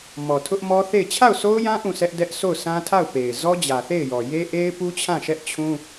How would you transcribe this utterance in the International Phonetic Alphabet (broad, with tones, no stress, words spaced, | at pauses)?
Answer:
mɔ˨tʰʊ˦ʔmɔ˦ θe˦˨ɪ̯ t͡ɕʰa˦˨ʊ̯so˦ʊ̯jã˦ ʔũ˦˨sɛ˦ʔ dɛ˦ʔ so˦˨ʊ̯sã˦tʰa˦˨ʊ̯pe˨ɪ̯ zɔ˦d͡ʑä˨θe˦˨ɪ̯jɔ˨ je˦ʔe˦ɪ̯pu˦t͡ɕʰã˦˨ ʃɛ˦ʔt͡ɕʰũ˦